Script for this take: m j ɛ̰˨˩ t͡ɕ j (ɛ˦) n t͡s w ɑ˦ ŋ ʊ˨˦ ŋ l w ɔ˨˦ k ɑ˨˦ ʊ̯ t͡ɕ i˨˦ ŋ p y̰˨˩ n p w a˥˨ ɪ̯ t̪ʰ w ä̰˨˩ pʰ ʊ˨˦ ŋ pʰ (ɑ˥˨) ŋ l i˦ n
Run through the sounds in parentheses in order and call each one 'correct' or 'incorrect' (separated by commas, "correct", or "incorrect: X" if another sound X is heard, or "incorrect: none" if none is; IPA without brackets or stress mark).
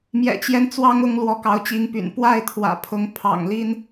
correct, incorrect: ɑ̰˨˩